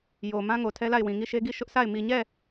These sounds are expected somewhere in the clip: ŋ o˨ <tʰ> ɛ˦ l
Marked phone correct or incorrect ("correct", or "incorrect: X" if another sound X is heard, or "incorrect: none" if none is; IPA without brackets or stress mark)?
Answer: correct